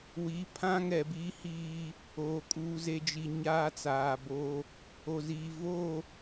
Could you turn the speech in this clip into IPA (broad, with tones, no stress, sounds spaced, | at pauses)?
w i˨˦ pʰ ã˦ ŋ ɛ˨ b iː˦ h iː˦ | oː˨ kʼ uː˨ z e˨ d͡ʒ i˨ ɲ aː˦ t͡s aː˨ b o˦ | o˨ z iː˨ v o˦˨